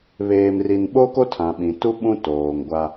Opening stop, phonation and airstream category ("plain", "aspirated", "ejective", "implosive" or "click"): implosive